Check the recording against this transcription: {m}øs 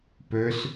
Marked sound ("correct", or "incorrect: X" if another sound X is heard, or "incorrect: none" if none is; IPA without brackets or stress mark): incorrect: p